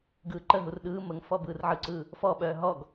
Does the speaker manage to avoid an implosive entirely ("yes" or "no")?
no